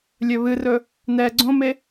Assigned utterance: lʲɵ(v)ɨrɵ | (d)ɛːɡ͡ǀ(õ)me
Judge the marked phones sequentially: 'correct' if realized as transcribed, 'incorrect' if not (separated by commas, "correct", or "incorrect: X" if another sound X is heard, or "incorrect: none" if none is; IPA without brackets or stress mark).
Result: incorrect: β, incorrect: n, correct